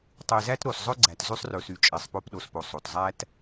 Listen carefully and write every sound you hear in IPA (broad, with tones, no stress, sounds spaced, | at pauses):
tˤ e˨ z æ˦ t ɾ o˨ s zˤ ɵ˦ ɡ͡ǀ æ˨ t z y˦ sˤ r ɵ˨ s y˨ t͡ʃʼ e˨ sˤ p o˦ p ɗ o˨ s p o˨ sˤ o˨ t zˤ æ˦ t